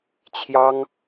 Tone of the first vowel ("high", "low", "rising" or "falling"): high